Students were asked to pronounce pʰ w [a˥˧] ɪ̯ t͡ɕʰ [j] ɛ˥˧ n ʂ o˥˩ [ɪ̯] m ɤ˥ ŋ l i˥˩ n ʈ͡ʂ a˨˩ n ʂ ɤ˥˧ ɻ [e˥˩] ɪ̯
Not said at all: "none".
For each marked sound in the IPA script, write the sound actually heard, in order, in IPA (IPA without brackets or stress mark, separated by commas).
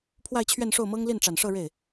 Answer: a˥˧, ɥ, ʊ̯, e˥˩